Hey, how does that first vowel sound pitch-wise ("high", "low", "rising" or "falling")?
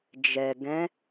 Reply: low